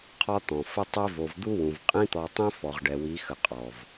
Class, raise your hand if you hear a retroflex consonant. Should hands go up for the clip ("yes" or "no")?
yes